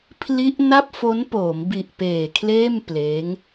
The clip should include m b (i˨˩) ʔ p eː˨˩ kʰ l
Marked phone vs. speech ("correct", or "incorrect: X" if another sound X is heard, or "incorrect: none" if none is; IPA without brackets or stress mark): correct